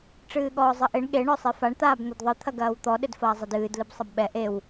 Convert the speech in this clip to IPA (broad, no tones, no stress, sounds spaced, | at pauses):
ʈ͡ʂ ɨː ɠ ɔː zˤ ɘ ʔ e ɳ ɠ e ɳ ɔ sˤ e f a ɳ t̪ aː b n̪ ɘ d ðˤ ɨ t̪ʰ ɐ ɡ ɐː w t̪ ɔ ɗ ɘ d f ɐː zˤ ɐ d ɨː d l ɨ b sˤ ɐ b ɓ ɛ ʔ e w